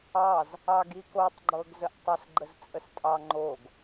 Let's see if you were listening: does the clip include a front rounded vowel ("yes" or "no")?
no